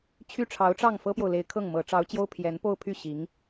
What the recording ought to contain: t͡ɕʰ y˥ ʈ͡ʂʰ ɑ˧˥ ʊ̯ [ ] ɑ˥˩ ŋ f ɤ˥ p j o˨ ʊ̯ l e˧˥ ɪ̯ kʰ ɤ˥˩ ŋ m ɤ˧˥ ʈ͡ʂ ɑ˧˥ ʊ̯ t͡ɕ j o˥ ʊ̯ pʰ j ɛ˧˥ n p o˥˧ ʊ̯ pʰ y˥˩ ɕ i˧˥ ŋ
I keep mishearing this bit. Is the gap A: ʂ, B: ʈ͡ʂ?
B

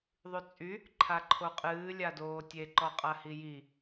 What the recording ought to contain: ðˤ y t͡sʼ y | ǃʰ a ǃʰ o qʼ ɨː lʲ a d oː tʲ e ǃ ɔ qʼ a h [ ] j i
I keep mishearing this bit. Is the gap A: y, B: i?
B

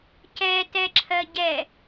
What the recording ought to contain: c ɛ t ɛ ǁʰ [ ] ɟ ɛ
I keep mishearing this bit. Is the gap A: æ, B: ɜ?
B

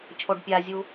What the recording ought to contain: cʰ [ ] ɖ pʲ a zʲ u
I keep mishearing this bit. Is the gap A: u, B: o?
B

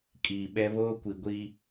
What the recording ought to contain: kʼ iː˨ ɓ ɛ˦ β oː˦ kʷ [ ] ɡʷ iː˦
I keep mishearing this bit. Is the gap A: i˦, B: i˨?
B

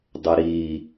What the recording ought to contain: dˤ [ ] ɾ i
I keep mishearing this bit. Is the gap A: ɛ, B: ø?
A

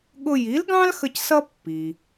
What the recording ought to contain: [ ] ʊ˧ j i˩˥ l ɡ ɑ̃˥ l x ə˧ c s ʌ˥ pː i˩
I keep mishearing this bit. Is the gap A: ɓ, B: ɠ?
B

